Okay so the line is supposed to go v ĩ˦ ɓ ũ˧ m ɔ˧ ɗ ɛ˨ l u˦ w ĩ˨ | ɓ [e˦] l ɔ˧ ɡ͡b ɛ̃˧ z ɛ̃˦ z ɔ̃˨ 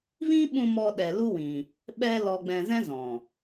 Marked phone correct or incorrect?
incorrect